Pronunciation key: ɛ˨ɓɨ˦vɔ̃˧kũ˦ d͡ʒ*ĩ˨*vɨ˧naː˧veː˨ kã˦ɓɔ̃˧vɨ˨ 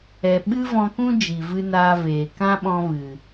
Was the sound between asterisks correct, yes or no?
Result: no